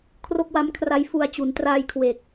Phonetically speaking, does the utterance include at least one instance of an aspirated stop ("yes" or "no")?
yes